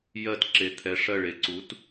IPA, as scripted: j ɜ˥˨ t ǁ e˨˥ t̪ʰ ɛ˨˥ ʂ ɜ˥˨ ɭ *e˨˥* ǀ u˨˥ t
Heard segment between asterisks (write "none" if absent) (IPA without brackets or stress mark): e˨˥